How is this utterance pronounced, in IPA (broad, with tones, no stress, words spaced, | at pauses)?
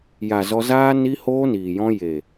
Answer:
ja˨ zɔ˧zaː˦ ni˧hoː˧ niː˨jɔ̃˧ je˨